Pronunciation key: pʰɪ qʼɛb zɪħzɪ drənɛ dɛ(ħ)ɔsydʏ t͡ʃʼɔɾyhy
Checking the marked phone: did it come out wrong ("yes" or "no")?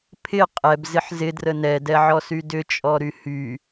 yes